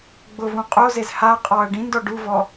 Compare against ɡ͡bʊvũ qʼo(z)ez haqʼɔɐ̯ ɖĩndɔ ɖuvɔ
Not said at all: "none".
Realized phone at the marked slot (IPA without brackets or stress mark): z